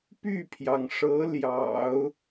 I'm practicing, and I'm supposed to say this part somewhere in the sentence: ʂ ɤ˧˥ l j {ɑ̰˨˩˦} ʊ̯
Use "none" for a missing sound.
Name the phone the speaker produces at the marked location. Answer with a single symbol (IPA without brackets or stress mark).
ɑ̰˨˩˦